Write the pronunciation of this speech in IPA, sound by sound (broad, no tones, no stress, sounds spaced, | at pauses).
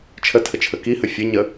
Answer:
t͡ʃʰ ə tʰ ə t͡ʃʰ ə k i h ə fʲ ə ɲ ə